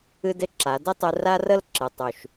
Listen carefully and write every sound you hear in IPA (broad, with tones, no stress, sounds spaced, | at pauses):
ɨ˦ d ɪ˦ ǁ a˨˦ d ɪ˦ tˤ ɨ˧ r a˦ r ə˦ l ǁ ɨ˨ tˤ u˨ ʃ